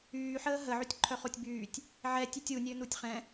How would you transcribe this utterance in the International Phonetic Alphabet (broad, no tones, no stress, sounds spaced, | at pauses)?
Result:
yː ħ əː ɦ ə ʕ y tʲ ǃʰ œ χ o tʲ b yː tʲ | ʕ ɛ tʲ y tʲ u nʲ ø n u tʲ χ ɛ̃